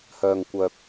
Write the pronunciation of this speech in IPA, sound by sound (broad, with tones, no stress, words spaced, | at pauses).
hœː˨ŋkʷœː˨p̚